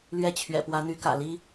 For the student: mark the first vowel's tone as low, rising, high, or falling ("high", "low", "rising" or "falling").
falling